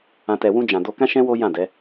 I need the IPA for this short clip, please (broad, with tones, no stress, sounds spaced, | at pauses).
ã˨ t ɛ˨ w ũ˧ d͡ʒ ã˨ d o˧ k ã˦ ʃ ɛ̃˦ w o˦ j ã˦˨ d ɛ˨˦